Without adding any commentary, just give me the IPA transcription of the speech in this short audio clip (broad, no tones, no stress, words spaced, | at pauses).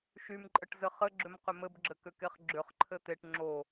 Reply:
ʃymǃʼəʈ zɘχɘɡ͡ǁʏm qʏmɘbɡ͡ǁɘ kʏkeχɡ͡ǁʏχǃʰɘ t̪eʈ ŋ͡ǁo